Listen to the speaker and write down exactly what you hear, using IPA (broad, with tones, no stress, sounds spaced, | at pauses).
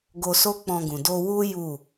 ɡ o˧ s o˦ k͡p ɔ̃˧ ɡ ũ˨ d o˧ w u˦ j u˦˨